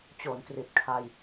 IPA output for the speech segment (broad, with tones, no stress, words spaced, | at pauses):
t͡ɕo˩˦nkri˨˩t̚kʰa˧j